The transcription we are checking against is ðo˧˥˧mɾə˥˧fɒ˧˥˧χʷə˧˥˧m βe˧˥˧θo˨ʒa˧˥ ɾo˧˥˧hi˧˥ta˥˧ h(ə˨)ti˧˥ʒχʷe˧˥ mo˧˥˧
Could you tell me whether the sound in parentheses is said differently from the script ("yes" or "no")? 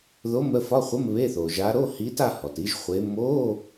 yes